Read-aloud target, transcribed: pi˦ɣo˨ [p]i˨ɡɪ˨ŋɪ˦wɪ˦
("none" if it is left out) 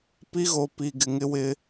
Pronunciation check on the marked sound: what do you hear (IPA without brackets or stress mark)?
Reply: p